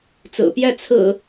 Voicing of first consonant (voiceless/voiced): voiceless